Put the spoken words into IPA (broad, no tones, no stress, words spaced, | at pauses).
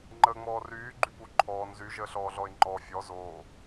ŋ͡ǃəːŋ͡mɔːryː ɡ͡ǃypu ǃʰɔːn zyʒəːɬɔːɮɔɪ̯ ŋ͡ǃɔ fʲɔ zoː